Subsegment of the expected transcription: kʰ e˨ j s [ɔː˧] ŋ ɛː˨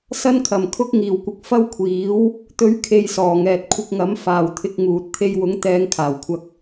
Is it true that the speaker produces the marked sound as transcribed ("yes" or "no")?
no